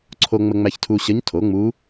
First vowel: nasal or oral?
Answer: oral